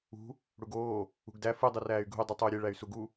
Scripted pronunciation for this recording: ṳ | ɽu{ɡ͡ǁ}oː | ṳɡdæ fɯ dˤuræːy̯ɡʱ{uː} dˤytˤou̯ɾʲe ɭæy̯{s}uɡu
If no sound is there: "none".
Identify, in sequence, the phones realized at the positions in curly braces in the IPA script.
ɡ, u, s

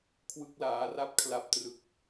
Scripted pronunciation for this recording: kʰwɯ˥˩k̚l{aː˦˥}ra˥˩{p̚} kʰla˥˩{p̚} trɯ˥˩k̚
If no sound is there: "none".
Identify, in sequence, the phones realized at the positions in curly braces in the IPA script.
aː˦˥, p̚, p̚

